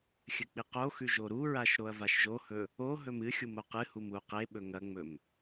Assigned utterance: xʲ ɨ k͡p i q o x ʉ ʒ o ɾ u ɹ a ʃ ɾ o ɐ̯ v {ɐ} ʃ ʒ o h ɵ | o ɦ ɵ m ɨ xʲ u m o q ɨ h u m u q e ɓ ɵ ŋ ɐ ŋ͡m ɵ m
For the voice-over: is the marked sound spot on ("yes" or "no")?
no